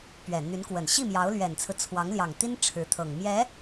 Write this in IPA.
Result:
pɥɛ˨˩n̪y˧˥nkwə˨˩n ɕi˥˩mjɑ˧˥ʊ̯lɥɛ˨˩nt͡sʰɹ̩˦ t͡sʰwɑ˧˥ŋljɑ˨˩ŋt̪i˥n ʈ͡ʂʰɻ̩˧˥t̪ʰɤ˨˩ŋ mjɛ˧˥

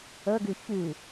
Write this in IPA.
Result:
ɤɡʉ çʉ

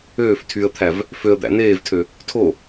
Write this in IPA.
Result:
øːf tʰyə̯t̪ʰæv | føə̯d̪æ̰ neːvtʰø | tʰo

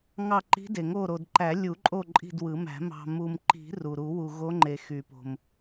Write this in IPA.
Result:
ŋɑ˦˨ǃi̤˧˥de˨ŋo˦˨ ɾo˨dǃæ˨˩˦lʲu˨˩˦ǃʼo˦˨ ǃʼi̤˦˨dwɯ˨˩˦mæ̤˨˩˦ mɑ̤˨mu˨mǃi̤˨˩˦ ru˨ ɾu˨˩˦wu˨ɣo˧˥ŋ͡ǃe˨ xy˨˩˦po̤˨m

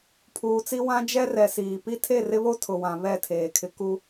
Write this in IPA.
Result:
pʰuː˨t͡si˦ wã˦d͡ʒɛ˦rɛ˨ siː˨ pi˦tʰe˦˨rɪ˦βo˦ tʰʊ˨wã˨ βɛ˦˨tʰeː˨kʰɪ˦ ku˦

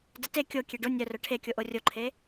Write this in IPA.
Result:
dəte kʲo kʲeɖo nʲœrœ ʈʰekʲoʔo rʲoǃʰe

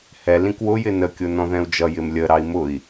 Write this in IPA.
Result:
hɛ lĩkwʊjɪ nəkʲʊ nɔ̃ðɛ̃u̯d͡ʒʌjɪm lʲəɾɑi̯ mʊi̯

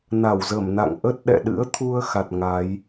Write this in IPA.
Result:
na˧˩wzə˧˩mna̰˧˨ŋ ʔə˦˥t̚ɗɛ̰˧˨ɗɨ̰˧˥ə̯t̪ʰu˧ə̯ xa˨˩t̚ ŋa˨˦j

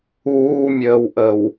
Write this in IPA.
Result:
uːmʲəːwʔəw

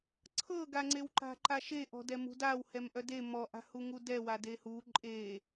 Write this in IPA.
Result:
ǀʰɤɡaŋ͡ǀewǃa̤ ǃaʃeʔɔ̤ dɛmṳdaw hɛmʔœde mɔʔa̤hu ŋudɛwa dehu ǃʼe

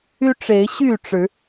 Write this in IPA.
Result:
y˦ʈ͡ʂe˨˦ɪ̯ɕy˥˨ ʈ͡ʂɻ̩˨˦

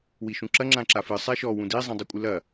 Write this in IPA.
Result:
wiʃũǁɐ ŋ͡ǁãǁafɨ sˤɛʃɔ wũdi zˤĩdˤukʷʼɨlɐ

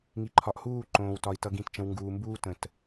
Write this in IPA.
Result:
ŋi˨ǃʰɒ˨ʔ huː˦˨ǃõː˨wtɒ˨i̯ tʌ˨ɡĩ˨tt͡ʃə̃˨w ŋɡuː˨mbuː˦ tə̃˨t

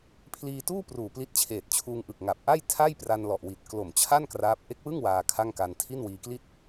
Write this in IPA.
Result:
pʰliː˧tuː˥˩ pruː˨˩pli˦˥t̚t͡ɕʰeː˨˩t̚t͡ɕʰuː˧ŋ ʔɯ˨˩k̚ŋa˨˩p̚ ʔa˥˩jtʰa˥˩j pra˧n lɔ˨˩ʔwi˨˩t̚ klo˨˩mt͡ɕʰa˥˩n kraː˦˥p̚ ʔe˦˥k̚wɯ˥˩ŋ waː˧kʰa˥˩ŋka˧n tʰi˥˩nwiː˧kli˥˩t̚

